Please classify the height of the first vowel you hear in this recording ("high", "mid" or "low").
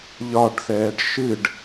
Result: low